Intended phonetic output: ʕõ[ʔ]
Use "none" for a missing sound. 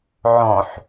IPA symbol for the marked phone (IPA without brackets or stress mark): ħ